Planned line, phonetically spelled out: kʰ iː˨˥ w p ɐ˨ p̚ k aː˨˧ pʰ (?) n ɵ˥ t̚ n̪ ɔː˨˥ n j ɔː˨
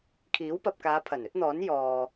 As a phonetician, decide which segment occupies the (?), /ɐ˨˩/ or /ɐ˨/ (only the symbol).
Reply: ɐ˨˩